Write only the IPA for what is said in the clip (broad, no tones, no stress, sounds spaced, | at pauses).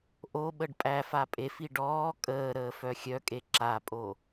ʔ o ɓ ə ɖ pʼ æ f a pʼ e f i ɖ ɔː kʼ əː ɾ əː f œ xʲ œ kʼ e ǁ a pʼ o